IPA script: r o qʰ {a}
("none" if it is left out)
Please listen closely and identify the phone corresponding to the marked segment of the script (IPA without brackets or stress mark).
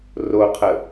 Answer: ə